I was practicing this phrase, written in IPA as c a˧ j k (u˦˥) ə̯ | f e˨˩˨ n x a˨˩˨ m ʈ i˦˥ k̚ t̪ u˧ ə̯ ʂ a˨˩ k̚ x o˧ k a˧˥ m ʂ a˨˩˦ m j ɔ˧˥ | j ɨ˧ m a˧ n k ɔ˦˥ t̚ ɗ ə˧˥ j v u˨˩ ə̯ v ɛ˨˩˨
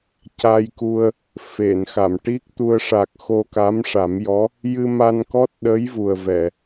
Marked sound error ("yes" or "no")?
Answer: yes